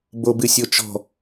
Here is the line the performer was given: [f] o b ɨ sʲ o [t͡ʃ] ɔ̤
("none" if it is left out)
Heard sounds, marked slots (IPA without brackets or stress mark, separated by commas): b, t͡ʃ